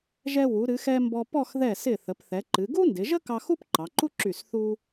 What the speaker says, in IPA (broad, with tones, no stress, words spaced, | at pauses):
ʒɛ˧wu˩˧ ɾɨ˩˧xɛ˧ mbɔ˧pɔ˥˧x ðɛ˧˩sɪ˧˩ θə˩˧pθɛ˩˧ǃɨ˩˧ ɡu˥ndɪ˩˧ʒə˥ kɑ˧xu˥p ǃɑ˩˧ǃu˥ǁy˧˩s θu˧